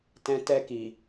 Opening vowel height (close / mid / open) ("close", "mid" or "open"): mid